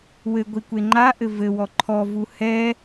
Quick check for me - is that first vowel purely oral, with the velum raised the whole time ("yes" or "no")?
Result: yes